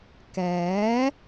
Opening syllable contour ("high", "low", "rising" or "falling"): rising